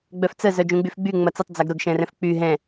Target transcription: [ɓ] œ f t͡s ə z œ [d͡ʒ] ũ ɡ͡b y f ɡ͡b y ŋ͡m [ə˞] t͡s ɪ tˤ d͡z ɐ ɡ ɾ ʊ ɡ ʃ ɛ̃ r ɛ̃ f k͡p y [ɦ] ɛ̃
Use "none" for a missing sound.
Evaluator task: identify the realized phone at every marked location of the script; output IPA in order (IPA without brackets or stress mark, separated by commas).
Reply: ɡ͡b, d͡ʒ, ɐ, ɦ